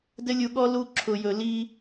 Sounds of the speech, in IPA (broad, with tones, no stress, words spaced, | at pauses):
dɘ˦lʲu˧ɠɔ˦ lu˧ǁʰʊ˨jɵ˨li˧